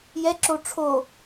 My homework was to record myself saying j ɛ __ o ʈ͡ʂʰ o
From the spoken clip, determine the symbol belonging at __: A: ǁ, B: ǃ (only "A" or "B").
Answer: A